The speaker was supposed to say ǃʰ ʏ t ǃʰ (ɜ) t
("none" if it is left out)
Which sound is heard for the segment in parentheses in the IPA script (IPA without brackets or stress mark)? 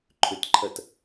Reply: ɜ